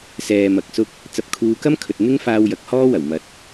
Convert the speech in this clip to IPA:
s ɛː˨ m ɐ˨ k̚ s ʊ˧ k̚ | t͡s ɐ˨ p̚ kʰ uː˨˧ k ɐ˥ m kʰ ɵ˨ t̚ n̪ ɪ˥ ŋ f aː˧ w j ɐ˨˥ k̚ h ɔː˥ w ɐ˨˩ w m ɐ˨˥ t̚

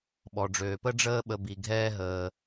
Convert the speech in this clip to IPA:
ɓ ɔ˩ ɖ͡ʐ øː˩ p ə˦ ɖ͡ʐ əː˦ ɓ ə˨ b i˩ ɡʱ ɛː˦ ɦ əː˩

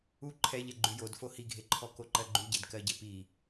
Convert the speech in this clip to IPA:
u ǃʰ ɛ ʎ ɛ ɡ͡ǃ ʉ j o d f o h i ɡʱ e ǃʰ ɔ k o ǃ ɜ ɡ͡ǃ ʉ ɟ e d k ɜ ɟ e p i

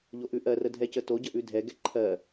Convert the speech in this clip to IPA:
ʎ o ʔ ʉ ʔ ɜ r ə dʱ ɛ c ə t o ɟ ə ʔ ʉ dʱ ɛ ɡ ɛ ǃʰ ɜ

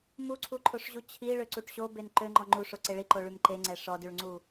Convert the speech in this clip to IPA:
m u ǀʰ u ǃʰ o ʂ ʑ u t͡ɕʰ i ɭ ø ǀ u ʈ ɕ o b e n ǃ ø ŋ͡ǃ ɔ ŋ͡ǃ u ʂ o ǀ e ɭ i ǃ o ɭ y m ǃ e ŋ͡ǀ ɛ ʂ ɔ d y ɭ ŋ͡ǀ u

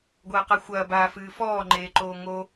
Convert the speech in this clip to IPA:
ɡʷ ɐː q a xʷ ɐː b aː f ɨː f ɔː ŋ͡ǃ eː ǃ oː ŋ o

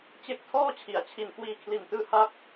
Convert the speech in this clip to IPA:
t͡ɕ e˦˥ k̚ tʰ ɔː˥˩ t͡ɕʰ i˩˦ a̯ t͡ɕʰ i˨˩ n k w iː˧ kʰ l i˨˩ n t ɯː˧ h a˦˥ k̚

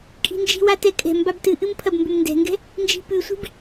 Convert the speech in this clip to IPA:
kʼ i̤ n d͡ʒ i̤ w a t ɛ kʼ ɛ̤ m b a b t ɨ ʔ ɨ m pʰ ɐ b m b ʏ m n d ɛ̤ ŋ ɡ ɛ̤ | n d͡ʒ i̤ p ʉ sʷ i̤ b

